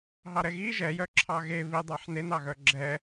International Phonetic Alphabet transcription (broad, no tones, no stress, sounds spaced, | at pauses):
ɦ ɑ ɾ ɛ ɣ i ʒ ɛ j œ ǁʰ ɑ ɣ e β i dˤ ɑ ħ n e n ɑ ɣ œ ɡ͡ǁ ɛ